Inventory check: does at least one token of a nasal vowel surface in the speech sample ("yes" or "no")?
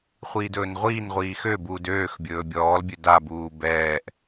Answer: no